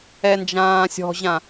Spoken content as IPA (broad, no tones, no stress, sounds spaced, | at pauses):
ɛ n d͡ʒ ãː sʲ ɔ̤ ʑ ã